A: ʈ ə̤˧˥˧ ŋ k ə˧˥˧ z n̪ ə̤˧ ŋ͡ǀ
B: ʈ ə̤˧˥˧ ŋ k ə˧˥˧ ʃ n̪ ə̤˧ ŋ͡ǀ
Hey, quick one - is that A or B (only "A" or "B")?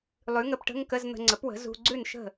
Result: A